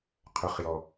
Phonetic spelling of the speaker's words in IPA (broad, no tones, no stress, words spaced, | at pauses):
qʰʏχjɔ